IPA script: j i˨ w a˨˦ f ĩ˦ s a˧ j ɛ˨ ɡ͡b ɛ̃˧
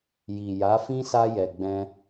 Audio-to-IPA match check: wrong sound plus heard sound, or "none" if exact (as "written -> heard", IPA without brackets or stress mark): w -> j